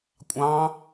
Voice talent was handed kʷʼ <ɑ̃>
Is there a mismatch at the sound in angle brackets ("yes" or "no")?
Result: no